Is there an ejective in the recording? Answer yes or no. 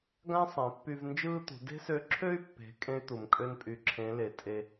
yes